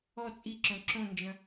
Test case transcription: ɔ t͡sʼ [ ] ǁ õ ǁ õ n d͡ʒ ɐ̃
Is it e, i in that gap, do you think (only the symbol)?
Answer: i